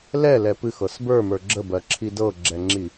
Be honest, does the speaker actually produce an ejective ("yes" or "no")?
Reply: no